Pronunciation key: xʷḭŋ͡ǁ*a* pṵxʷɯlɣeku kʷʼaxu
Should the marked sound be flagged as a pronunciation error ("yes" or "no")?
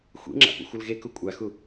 yes